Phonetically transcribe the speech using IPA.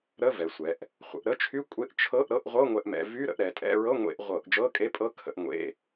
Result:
ɾ ə˧˥˧ v ɛ˩˧ sʷ ɛ˩˧ ʔ | χʷ ə̰˩˧ ʔ ɾ ə˧˥˧ t͡ʃʰ y˧˥˧ kʷʼ e˧˥˧ ʔ t͡ʃʰ ɤ˧˥˧ ʔ ɾ ɤ˧˥˧ ʔ ʁʷ ɤ˧˥˧ ŋʷ ɛ˧˩˧ ʔ m ɛ̰˩˧ v y˧˥˧ ɾ ə̰˧˩˧ ʔ ɾ ɛ˩˧ tʼ ɛ̰˧˥˧ ɹ ɤ˧˥˧ ŋʷ ḛ˧˩˧ ʔ ʁʷ ɤ˧˩˧ ʔ d͡ʒ ɤ˧˥˧ kʼ e˧˥˧ pʼ ɤ˧˥˧ kʰ ə̰˧˥˧ ʔ ŋʷ ḛ˧˥˧

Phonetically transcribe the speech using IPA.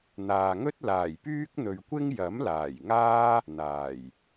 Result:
n̪ aː˨ ŋ ɵ˥ t̚ l aː˨˩ j p yː˥ k̚ n̪ ɵ˨ ɥ kʷ ɪ˥ ŋ j ɐ˨˥ m l aː˨˩ j ŋ aː˥ | n̪ aː˨˩ j

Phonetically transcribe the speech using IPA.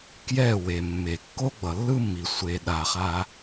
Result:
k j ɛ˦˨ w e˨ mː e˨ kː o˦ ɡ͡b ʌ˨ lː ɯ˦ mː i˨ sʷ e˧ ɗ a˧ χ a˦

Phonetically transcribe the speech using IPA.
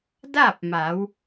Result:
d a˥˨ p̚ m a˩˧ w

